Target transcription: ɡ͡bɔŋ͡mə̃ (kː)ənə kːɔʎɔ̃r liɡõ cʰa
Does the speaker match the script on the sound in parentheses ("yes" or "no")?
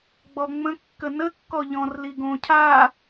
yes